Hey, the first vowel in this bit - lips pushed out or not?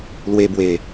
no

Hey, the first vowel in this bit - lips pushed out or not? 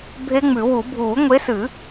no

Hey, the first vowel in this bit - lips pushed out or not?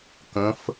no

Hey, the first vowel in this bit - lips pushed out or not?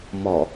yes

